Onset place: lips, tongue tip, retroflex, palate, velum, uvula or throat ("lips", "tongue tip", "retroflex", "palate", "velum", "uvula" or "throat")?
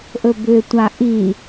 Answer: throat